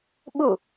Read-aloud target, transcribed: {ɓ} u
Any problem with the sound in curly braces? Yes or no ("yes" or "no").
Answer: no